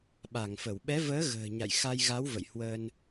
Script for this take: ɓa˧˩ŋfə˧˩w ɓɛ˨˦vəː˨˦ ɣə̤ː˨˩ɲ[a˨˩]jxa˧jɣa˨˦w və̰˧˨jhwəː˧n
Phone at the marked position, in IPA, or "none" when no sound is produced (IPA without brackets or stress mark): a̰˧˨